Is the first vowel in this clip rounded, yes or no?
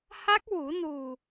no